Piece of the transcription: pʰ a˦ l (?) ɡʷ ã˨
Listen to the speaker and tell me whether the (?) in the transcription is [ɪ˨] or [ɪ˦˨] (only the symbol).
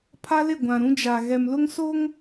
ɪ˦˨